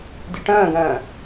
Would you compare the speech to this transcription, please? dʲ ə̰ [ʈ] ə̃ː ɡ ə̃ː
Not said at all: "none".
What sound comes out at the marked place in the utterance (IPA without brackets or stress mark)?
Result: ʈ